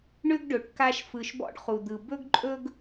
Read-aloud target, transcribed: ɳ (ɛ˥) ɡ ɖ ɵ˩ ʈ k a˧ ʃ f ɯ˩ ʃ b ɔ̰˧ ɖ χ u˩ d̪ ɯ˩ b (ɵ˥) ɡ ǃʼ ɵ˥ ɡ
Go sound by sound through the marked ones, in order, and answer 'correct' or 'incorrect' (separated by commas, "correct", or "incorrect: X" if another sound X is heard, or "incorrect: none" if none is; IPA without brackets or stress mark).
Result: incorrect: ʏ˥, correct